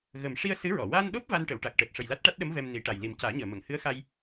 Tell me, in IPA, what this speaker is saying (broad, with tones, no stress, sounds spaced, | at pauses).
ɣ ə˨˩ m ʂ i˧ ə̯ s ɨ˧˥ ɹ ɔ˨˩˨ w a˧ n ɗ o˦˥ p̚ v a˧ n ʈ ə˨˩˨ w ʈ a˨˩ k̚ ʈ əː˨˩ t̚ ʂ ə˨˩ j l a˦˥ t̚ ʈ a˦˥ t̚ ɗ ə˧˥ m v ɛ˧ m n i˨˩˦ ʈ a˨˩ j l i˨˩ m c aː˨˩˦ ɲ əː˨˩˨ m ə˨˩˨ ŋ h ɨ˧˥ ə̯ x a˧ j